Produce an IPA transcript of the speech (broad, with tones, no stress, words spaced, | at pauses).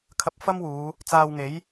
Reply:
kʰɐ˧p̚fɐ˥mwuː˨˧ | t͡saː˧wŋe˨˥j